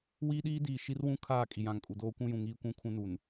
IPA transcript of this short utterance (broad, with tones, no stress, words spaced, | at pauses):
wiː˦ɗiː˦diː˨ ʃi˦rwũ˦ kʰaː˦˨kʼi˨jã˨ŋkʼu˨ doː˦kʷũ˦jũ˨ ŋiː˦kʷũ˦ kʰũ˦nu˨n